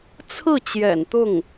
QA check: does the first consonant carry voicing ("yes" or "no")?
no